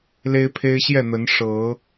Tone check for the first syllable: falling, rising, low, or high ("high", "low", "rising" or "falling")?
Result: high